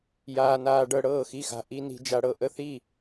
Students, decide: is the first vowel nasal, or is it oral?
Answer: oral